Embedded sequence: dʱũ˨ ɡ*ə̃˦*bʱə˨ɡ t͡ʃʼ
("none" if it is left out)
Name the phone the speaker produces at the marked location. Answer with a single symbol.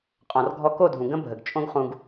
ə̃˦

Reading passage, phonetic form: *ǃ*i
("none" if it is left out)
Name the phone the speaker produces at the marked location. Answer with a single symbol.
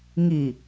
ŋ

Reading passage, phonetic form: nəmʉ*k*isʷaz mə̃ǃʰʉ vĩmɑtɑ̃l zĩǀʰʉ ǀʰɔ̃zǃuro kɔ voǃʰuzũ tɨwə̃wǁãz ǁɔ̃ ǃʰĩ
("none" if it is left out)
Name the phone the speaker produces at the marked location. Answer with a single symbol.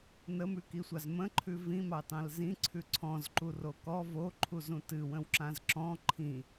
k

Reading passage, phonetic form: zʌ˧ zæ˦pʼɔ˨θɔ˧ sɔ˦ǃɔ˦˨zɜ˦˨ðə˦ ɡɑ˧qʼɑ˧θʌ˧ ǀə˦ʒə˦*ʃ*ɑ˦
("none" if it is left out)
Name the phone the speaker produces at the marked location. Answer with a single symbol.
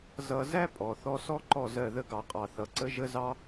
z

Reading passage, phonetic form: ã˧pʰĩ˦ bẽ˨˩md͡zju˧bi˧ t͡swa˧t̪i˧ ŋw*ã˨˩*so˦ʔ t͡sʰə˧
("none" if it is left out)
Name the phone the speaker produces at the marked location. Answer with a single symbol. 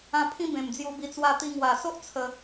a˨˩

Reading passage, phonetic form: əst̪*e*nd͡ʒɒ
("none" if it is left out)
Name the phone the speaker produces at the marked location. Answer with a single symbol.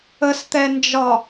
ɛ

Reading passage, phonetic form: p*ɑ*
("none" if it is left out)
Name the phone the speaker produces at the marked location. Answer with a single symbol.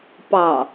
ɑ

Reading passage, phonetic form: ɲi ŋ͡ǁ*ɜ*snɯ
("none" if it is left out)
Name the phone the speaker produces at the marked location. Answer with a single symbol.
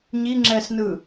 ɛ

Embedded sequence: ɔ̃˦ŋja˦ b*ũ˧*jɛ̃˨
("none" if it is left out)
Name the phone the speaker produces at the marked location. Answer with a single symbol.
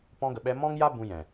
ũ˧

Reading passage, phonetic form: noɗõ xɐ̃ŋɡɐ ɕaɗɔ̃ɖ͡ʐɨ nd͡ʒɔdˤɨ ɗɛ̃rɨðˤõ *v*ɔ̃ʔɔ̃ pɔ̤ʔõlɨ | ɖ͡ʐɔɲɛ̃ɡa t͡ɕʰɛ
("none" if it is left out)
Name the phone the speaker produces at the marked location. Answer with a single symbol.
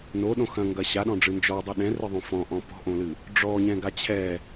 f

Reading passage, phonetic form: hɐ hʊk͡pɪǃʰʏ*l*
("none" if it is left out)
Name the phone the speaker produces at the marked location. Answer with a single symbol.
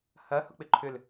l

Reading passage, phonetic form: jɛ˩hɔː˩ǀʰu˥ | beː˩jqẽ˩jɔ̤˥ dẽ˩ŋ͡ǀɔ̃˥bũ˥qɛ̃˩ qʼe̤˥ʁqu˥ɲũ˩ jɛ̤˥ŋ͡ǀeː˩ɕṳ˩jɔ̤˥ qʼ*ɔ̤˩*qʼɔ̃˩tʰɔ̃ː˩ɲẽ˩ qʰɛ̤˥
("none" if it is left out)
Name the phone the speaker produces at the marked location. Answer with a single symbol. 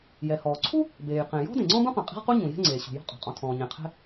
ɔ̤˩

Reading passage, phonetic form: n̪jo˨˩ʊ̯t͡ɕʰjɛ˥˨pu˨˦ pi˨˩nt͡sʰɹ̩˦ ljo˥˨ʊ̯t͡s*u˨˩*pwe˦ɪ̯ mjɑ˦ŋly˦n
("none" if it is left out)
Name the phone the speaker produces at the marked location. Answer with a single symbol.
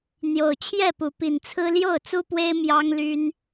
u˦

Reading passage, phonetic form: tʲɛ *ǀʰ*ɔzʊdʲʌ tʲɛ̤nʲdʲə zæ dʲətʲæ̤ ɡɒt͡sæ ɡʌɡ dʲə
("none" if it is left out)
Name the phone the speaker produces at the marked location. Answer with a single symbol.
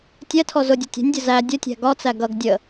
tʰ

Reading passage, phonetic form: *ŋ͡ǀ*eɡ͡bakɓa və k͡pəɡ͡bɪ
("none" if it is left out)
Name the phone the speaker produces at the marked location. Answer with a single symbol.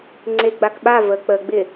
ŋ͡ǀ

